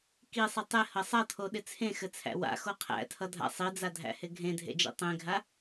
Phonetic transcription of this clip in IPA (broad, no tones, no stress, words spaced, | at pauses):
kisˤɘ tˤɪhʌ sˤʌtʰoɗɪ t͡sʰẽxɘt͡sʰæ̰ wa̰xo qʰæ̰tʰʌdʱa̰ sˤid͡zadʱæ̰hɪ ɡʱẽdʱḛd͡ʒḛ tˤẽɡʱa